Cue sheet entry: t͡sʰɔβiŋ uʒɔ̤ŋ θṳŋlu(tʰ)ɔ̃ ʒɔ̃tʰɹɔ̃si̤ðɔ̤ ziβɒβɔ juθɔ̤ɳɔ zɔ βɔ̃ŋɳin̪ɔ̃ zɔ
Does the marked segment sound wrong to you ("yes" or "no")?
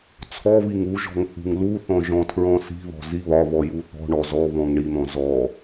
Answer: yes